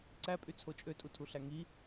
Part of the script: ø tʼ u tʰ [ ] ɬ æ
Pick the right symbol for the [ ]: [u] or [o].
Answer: u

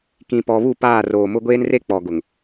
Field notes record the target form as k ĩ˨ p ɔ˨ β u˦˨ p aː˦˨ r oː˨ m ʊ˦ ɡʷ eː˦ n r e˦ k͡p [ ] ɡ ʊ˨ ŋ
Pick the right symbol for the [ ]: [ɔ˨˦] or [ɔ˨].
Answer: ɔ˨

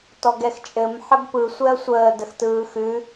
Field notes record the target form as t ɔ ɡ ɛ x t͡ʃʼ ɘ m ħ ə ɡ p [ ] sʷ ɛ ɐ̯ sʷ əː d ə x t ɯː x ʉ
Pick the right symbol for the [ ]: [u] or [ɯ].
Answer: ɯ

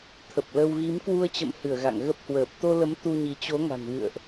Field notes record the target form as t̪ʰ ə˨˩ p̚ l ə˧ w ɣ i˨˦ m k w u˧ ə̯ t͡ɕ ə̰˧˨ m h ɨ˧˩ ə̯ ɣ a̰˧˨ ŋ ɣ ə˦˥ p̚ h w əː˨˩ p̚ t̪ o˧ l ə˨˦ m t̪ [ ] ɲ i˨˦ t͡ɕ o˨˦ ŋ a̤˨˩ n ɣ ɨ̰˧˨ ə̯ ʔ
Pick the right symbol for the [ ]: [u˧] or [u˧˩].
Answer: u˧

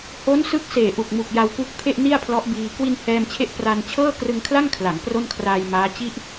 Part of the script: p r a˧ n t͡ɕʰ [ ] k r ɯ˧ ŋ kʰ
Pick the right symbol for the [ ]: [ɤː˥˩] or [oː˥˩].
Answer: ɤː˥˩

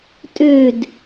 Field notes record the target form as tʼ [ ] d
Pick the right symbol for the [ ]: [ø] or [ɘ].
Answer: ø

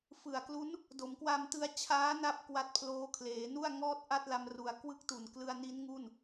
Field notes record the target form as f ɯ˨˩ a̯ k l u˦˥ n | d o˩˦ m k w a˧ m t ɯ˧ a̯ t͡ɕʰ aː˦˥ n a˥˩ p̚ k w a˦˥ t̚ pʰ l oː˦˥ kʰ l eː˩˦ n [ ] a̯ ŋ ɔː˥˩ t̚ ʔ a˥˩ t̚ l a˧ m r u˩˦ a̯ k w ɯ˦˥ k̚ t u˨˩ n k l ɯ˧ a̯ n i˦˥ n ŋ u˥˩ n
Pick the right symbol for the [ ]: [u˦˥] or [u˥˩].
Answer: u˥˩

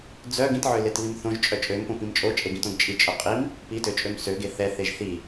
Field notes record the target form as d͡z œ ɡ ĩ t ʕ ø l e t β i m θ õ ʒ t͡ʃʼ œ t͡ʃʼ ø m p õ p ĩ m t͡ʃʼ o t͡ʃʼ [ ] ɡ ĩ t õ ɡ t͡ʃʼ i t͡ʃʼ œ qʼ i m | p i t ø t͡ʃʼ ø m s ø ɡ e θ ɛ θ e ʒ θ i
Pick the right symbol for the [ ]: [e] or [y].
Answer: e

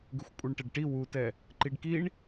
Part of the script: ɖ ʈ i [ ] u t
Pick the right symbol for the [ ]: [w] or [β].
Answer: w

